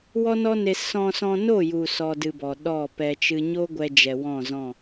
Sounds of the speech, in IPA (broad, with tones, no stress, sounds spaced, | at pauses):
w ɔ˦ n ɔ˦ n e˧ s ɔ̃˧ s ɔ̃˧ n o˦˨ j u˨ s ɔ˧ d ɨ˧ b ɔ˨ ɗ ɔ˦˨ p ɛ˧ t͡ʃ ɨ˦ ɲ o˦ ɡʷ ɛ˧ d͡ʒ ɛ˨ w ɔ̃˦˨ z ɔ̃˦˨